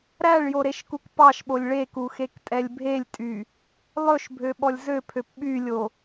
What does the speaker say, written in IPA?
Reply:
ɾ æ ɭ j o ɾ e ʃ k u k p ɑ ʃ ɓ o lʲ ɭ e k u x e k tʼ ɛ lʲ bʱ e lʲ tʼ y | lˠ ɵ ʃ bʱ ø ɓ ɔ lʲ z ø pʰ ø p ɓ y lʲ o

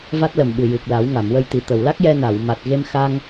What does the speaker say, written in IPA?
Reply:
v a˦˥ t̚ l ə˨˩ m ɓ ɨ˨˩ j ɨ˨˩ k̚ l a˨˩˦ w ŋ a˨˩˨ m w ə˧ j t̪ i˨˩ t̪ ə˨˩˨ w l a˦˥ k̚ j ɛ˧ n a˨˩˨ w m a˨˩ t̚ ɣ e˧ m x a˧ ŋ

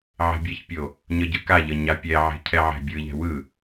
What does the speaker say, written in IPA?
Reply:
ʕ e̤ bʲ ɛ ç pʲ o | ɲ ʌ ɟ ɯ k a ʎ ʌ ɲ a pʲ ɛ ʕ e̤ cʰ ɛ ʕ ɛ̤ bʲ ɯ ʎ ɛ̤ w ɯ

